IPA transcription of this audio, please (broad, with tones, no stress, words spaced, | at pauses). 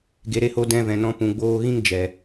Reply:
ɡe˨ɾe˧ho˨˦ dɛ̃˧vɛ̃˨nɔ̃˧ pũ˨ɡ͡boː˧ɣĩ˦ŋ d͡ʒɛ˨